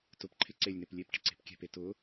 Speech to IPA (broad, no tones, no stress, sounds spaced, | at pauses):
t ʊ p ǃʰ ɪ ǀ e lʲ n e p lʲ e p ʈ ɪ ǀ e̤ p kʲ ɛ̤ p e t ʊ